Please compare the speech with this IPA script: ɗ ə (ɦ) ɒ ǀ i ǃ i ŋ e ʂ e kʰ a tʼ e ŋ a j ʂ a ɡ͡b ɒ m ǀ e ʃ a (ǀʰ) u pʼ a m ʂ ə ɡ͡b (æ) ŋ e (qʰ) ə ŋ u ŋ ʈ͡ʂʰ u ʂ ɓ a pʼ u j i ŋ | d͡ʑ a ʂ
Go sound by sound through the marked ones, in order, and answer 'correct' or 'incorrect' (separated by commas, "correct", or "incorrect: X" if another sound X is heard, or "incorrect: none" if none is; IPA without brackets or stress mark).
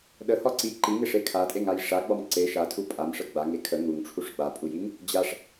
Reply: incorrect: h, incorrect: tʰ, incorrect: a, incorrect: kʰ